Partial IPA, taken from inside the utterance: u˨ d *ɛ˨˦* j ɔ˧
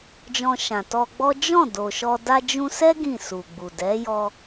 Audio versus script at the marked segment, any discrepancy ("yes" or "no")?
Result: no